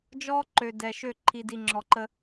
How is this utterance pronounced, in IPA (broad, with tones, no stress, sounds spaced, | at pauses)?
d͡ʒ ɔ˦ ǃ ø˨ d ɛ˨ ʃ ø˦˨ ǃʰ i˨ d i˨ ŋ͡ǁ ɔ˨ ǃ ə˦